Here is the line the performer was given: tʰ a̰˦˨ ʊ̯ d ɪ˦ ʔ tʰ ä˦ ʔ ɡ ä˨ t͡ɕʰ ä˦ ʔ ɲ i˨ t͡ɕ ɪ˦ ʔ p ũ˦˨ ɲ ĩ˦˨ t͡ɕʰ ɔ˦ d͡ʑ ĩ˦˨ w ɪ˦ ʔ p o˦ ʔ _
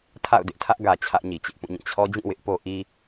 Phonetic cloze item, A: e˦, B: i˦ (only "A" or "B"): B